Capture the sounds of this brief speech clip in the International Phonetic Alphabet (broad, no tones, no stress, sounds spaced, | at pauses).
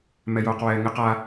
m ɛ j oː q w ɛː ŋ ɪ q a